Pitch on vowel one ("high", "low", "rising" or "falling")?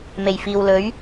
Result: low